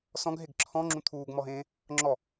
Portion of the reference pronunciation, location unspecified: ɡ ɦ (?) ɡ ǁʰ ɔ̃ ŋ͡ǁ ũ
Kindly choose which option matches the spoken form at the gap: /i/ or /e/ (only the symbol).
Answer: e